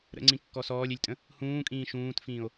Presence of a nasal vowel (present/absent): present